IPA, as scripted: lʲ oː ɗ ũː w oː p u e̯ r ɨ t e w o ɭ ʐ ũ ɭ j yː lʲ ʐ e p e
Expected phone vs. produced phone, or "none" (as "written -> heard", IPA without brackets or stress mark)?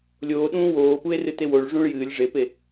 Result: yː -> ɨː